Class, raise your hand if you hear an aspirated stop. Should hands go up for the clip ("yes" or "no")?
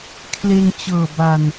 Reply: yes